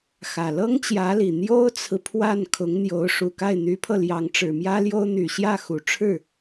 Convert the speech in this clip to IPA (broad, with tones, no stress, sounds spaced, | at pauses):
x ä˨˩ l ɤ˥ ŋ t͡ɕ j ä˧˥ l i˨˩ n̪ j o˥ ʊ̯ t͡sʰ ɹ̩˨ pʰ w a˥˩ n kʰ ʊ˧˥ ŋ n̪ j o˧˥ ʊ̯ ʂ u˨˩ k a˥˩ ɪ̯ n̪ y˧˥ pʰ ɤ˧ l j ɑ˧˥ ŋ ʈ͡ʂ ɻ̩˨˩ m j ä˥ l j o˥ ʊ̯ n̪ y˨˩ ɕ j ä˥˩ x u˨˩ ʈ͡ʂʰ ɻ̩˥˩